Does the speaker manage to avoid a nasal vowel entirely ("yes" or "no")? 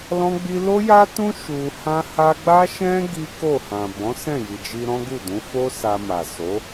no